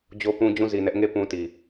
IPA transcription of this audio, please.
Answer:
d͡ʑ o˦ p ũ˦ d͡ʑ ũ˦˨ z i˨ n ɛ˦ ʔ ŋ e˦˨ p ũ˦ t i˨

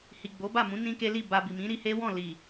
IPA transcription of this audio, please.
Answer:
h i˨ ɡ͡b o˨˦ b a˦˨ m ũ˨˦ n ĩ˦ k e˦ l i˦˨ b a˧ b i˨ m ĩ˨˦ ɾ i˧ h e˦ w ɔ̃˦˨ l i˨

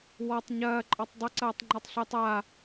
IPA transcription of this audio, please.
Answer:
w ɒ tˤ ɲ ɐː ǃʼ ɒ tˤ dˤ ɐ ǀ ɐː tˤ ŋ͡ǃ ɒ tˤ ɬ ɪː tˤ a

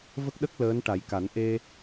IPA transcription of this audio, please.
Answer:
v ə˦˥ k̚ ɗ ə˦˥ k̚ l əː˧˥ n ʈ a˨˩˦ j k a˨˩˦ n ʔ e˧

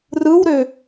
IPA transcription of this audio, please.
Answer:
r ɯ w ɾ ø

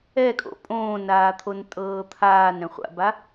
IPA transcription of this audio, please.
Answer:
ɛ kʼ o̰ pʼ õː n aː t̪ʰ o n tʼ ɤː t̪ʰ aː n ɾ ɛ̃ χʷ a̰ b a

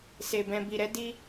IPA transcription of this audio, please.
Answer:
s e˨ b ɛ̃˨ b i˨ ɾ ɛ˧ d i˧

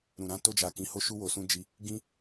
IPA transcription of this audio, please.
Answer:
ɾ ũ˨ ɾ ã˧ t o˧ d͡ʒ a˨ k ĩ˨˦ h o˦ ʃ u˦ w o˧ s ũ˦ d͡ʒ i˦ | ɡ ĩ˦

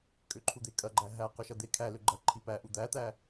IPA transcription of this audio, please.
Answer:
kʼ ʏ ǃʰ u d̪ e kʼ ɐ ɡ͡ǃ æ ɦ æ q ʏ ʃ ɐ d̪ e kʰ æ l ʏ ɡ͡ǃ ɐ ǃʰ i p æ ʔ u d̪ æ t̪ æ

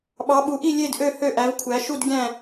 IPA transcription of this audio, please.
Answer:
ɓ ɑ˨˥ ɓ u˨˥ ʔ i˥˨ lʲ e˥˨ d ʔ ø˥˨ h ø˥˨ ʔ æ˨˥ v kʷʰ æ˨˥ ʃ u˥˨ d ɡʲ æ̃˥˨

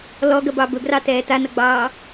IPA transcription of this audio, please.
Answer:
l ɔ ɡ ɐ b ɑ b ɵ ɡ r ɑ t ɛː t a n ɐ ɡ͡b ɑː

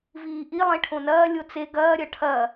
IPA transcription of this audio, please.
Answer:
v iː ʔ i lˠ ẽ ʈʰ õ n ɐː lʲ o t͡s e ɡ ɐː ɾʲ ɐ ʈʰ ɐ

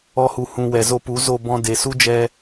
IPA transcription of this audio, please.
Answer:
ɔ˧ h u˨ h ũ˨ w ɛ˨ z o˧ p u˨˦ z o˧ b ɔ̃˧ d e˨ s u˦ d͡ʒ ɛ˧

